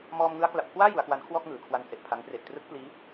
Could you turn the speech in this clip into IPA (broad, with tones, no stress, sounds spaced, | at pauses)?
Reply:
m ɔː˧ m ŋ ɯ˦˥ a̯ k l a˨˩ p̚ kʰ w aː˥˩ j u˩˦ a̯ k w a˦˥ n kʰ w ɔː˥˩ k̚ ŋ ɯː˩˦ kʰ w a˧ n s e˨˩ ʔ pʰ a˦˥ ŋ p r e˨˩ ʔ t r ɯ˦˥ k̚ p l iː˦˥